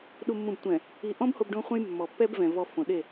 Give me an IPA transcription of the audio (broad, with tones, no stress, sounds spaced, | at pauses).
ɗ u˨ mː ũ˨ b tʷ ɛ̃˨ | i˨ ʔ ɔ̃˦ b h o˦ b ɖ õ˦ χʷ ẽ˦ j mː ɔ˨ pː ɛ˦ b v ɛ̃˨ v ɔ˨ f õ˨ ɗ e˦˨